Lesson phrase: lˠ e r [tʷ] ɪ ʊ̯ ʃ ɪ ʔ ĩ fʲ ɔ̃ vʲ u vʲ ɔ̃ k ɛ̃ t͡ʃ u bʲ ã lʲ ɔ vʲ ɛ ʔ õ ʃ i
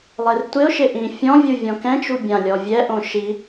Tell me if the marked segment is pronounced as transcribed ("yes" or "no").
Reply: yes